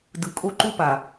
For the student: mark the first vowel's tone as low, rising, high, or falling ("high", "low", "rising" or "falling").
low